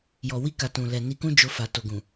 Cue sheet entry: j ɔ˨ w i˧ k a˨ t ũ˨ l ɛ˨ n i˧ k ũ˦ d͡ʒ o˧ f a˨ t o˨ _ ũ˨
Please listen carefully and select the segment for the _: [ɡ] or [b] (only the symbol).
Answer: ɡ